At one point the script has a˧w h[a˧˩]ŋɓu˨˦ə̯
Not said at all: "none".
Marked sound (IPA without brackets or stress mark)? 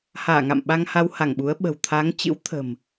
a˧˩